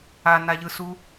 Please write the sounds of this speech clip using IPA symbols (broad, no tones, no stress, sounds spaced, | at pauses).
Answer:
a n a ʎ ɯ s u